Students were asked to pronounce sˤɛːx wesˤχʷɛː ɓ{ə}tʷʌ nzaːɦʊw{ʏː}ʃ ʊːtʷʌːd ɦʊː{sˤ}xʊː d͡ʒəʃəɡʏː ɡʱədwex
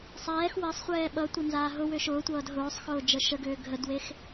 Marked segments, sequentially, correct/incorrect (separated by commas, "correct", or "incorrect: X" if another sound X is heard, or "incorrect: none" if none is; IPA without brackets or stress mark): incorrect: ʌ, correct, correct